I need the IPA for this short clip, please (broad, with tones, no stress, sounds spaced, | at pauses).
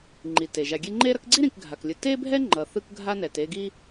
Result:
ŋ͡ǃ i˩ t e˩ ʒ a˨ ɡʲ e˦ ŋ͡ǃ e˥ ɾ ʌ˥ k ɡ͡ǀ i˥ ɾ ĩ˨ k ɡʱ a˩ k lʲ ɯ˨ t e˥ bʱ ɛ˥ ŋ͡ǃ ʌ˨ θ ɯ˥ k ɡʱ a˥ n ɛ˨ t e˦ ɡ i˥